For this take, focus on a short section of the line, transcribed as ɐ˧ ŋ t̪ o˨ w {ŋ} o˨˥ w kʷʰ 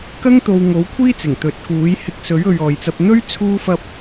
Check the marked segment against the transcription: correct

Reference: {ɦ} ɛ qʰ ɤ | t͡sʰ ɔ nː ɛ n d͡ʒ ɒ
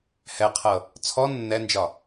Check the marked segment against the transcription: incorrect: h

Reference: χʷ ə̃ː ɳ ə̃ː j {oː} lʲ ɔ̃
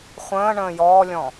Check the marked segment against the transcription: incorrect: ɔː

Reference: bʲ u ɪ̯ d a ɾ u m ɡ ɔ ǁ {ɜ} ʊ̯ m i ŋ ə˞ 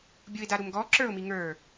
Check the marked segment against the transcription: incorrect: ə˞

